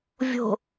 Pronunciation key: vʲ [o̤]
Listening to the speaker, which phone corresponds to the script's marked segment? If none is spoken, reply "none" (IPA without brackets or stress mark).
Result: o̤